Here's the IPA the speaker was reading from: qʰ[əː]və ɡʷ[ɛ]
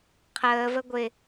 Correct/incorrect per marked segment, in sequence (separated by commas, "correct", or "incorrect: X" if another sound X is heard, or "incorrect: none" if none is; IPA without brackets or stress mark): correct, incorrect: ɪ